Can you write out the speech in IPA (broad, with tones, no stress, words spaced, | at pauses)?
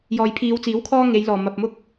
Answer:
jɔː˨jpʰiː˨˧wt͡siː˨˥w kʰɔː˥ŋe˨˧jlɔː˨˩ mɐ˨p̚mʊ˥k̚